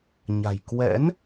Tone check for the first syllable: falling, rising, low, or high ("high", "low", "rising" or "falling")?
low